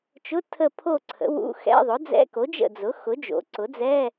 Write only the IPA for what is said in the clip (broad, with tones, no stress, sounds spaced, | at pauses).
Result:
t͡ʃ ʊ˧˥˧ tʰ ə˦˨ pʰ o˦˨ ǀʰ ə̰˩˥ w ṵ˧˥˧ x ɛ̰˧˥˧ ðˤ ʊ˩˥ d͡z ɛ̰˧˥˧ k o˩˥ d͡ʒ ə̰˦˨ d͡z ʊ˩˥ x ʊ˩˥ d͡ʒ o̰˩˥ ǀ ʊ˩˥ d͡z ɛ˧˥˧